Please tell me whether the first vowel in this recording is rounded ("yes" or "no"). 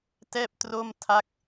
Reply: no